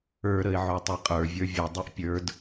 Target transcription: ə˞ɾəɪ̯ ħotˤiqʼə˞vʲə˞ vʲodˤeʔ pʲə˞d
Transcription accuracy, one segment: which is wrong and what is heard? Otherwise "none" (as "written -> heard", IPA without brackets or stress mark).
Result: ħ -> ʕ